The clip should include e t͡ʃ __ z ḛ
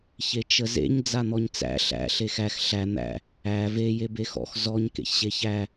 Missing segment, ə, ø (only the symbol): ə